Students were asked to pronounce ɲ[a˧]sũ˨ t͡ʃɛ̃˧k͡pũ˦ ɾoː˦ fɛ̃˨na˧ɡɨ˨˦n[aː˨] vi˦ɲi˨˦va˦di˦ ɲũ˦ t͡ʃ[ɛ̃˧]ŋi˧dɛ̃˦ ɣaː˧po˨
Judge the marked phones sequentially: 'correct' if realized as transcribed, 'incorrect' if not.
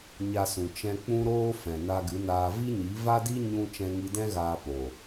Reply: correct, incorrect: aː˧, correct

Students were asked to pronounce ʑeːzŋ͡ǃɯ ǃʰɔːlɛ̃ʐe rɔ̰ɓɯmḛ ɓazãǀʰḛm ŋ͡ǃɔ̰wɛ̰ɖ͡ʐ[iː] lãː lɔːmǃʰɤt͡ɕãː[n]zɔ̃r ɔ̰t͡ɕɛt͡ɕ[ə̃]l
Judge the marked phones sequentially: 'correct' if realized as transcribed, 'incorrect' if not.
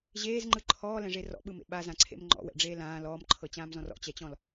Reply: incorrect: eː, incorrect: m, incorrect: ɔ̃

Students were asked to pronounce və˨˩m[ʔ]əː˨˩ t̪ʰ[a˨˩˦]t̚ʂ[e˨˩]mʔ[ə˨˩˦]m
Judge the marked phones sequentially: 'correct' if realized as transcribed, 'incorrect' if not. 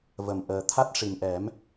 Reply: correct, incorrect: a˦˥, incorrect: i˨˩, incorrect: ɛ˨˩˦

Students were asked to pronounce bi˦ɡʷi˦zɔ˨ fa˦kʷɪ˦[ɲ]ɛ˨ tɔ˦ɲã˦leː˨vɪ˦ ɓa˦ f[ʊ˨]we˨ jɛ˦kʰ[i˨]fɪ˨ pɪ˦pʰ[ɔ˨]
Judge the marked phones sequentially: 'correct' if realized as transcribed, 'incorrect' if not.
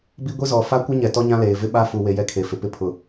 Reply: correct, incorrect: u˨, incorrect: e˨, incorrect: ʊ˨

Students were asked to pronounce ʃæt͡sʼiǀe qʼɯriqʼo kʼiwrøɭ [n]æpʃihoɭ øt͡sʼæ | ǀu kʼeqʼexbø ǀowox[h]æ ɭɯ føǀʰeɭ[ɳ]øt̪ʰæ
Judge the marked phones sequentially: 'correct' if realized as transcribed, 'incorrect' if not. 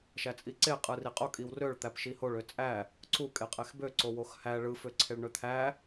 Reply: incorrect: t̪, correct, correct

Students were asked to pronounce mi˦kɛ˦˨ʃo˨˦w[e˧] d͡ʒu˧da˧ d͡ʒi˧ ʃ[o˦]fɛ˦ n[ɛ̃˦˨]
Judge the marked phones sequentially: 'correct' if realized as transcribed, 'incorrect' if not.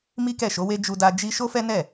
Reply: incorrect: e˦, correct, incorrect: ɛ˦˨

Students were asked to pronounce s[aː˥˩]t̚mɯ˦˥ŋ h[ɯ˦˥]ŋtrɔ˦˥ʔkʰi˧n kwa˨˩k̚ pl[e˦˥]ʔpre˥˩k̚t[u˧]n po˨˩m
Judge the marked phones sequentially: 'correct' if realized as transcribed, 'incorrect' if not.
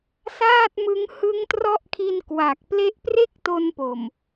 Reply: correct, correct, correct, incorrect: o˧

